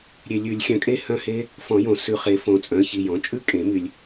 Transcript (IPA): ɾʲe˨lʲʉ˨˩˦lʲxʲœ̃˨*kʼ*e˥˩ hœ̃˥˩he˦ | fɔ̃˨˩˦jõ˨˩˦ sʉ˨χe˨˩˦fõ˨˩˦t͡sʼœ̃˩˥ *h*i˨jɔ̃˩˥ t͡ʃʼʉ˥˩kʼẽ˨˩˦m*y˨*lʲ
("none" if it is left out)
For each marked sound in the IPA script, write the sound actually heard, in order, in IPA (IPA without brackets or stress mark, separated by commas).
kʼ, ç, y˨